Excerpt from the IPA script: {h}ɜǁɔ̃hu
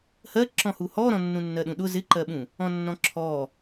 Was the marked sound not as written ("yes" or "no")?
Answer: no